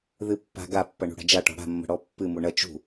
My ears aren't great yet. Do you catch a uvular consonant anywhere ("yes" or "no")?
no